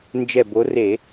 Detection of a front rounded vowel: absent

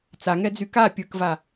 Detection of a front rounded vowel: present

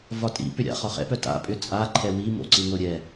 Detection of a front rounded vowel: present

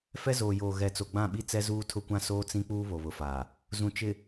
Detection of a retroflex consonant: absent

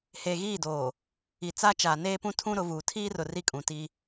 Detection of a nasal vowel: present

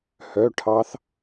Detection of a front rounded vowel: present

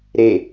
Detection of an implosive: absent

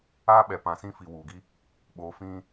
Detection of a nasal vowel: present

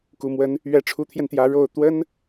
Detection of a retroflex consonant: present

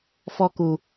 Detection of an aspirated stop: absent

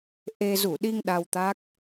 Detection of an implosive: present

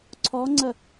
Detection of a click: present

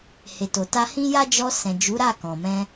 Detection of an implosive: absent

